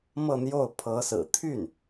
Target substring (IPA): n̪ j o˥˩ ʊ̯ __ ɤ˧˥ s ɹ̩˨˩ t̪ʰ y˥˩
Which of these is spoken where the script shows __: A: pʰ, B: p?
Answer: A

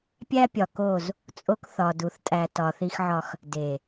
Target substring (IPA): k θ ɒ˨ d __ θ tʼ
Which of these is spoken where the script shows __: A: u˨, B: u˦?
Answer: A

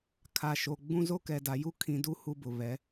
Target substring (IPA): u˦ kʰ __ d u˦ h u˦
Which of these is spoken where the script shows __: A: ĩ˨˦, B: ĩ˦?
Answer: A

